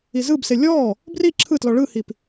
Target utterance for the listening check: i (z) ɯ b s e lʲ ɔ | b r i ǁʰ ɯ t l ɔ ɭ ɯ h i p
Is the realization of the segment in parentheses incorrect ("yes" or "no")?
no